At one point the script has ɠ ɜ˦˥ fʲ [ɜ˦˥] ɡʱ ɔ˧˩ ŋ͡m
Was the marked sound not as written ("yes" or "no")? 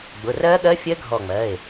no